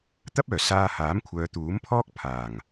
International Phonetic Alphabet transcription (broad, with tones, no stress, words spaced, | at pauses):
t̪ɐ˥p̚œː˨˩ saː˧ haː˨˥mkʷʰœː˨˧t̪uː˨˥m pʰɔː˥k̚ pʰaː˨˩ŋ